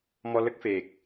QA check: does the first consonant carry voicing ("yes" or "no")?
yes